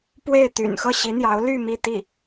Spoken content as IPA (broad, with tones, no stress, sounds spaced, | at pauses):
p w e˥˩ ɪ̯ t̪ y̰˨˩ n x ɤ˥˩ ɕ i˧˥ n̪ j ɑ˧˥ ʊ̯ l y˥˧ m i˥˧ t̪ i˥˩